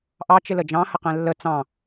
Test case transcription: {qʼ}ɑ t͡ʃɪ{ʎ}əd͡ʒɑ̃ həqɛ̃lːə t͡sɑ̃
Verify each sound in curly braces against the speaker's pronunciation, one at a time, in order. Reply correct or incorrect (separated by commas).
incorrect, incorrect